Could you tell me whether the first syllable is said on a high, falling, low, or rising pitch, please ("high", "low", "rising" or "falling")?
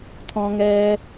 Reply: low